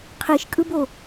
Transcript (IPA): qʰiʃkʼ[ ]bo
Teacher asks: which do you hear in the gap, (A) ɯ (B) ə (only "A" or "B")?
A